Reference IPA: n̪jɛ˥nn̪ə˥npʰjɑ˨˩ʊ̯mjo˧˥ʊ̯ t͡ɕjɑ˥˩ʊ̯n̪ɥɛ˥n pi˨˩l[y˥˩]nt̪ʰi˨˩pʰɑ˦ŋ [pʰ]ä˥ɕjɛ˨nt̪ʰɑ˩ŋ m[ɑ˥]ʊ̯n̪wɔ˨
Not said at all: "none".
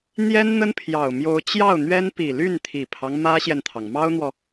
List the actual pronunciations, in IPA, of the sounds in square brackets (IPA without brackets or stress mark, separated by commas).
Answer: y˥˩, m, ɑ˥